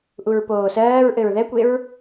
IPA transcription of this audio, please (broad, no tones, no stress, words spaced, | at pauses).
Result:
ʔuɹpoːsɜːɹʔɘɹ ðɛkʷeɹ